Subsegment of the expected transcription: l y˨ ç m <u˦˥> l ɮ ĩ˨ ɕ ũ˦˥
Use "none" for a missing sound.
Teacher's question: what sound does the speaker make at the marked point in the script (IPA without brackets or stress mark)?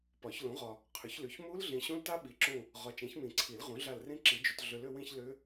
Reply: u˦˥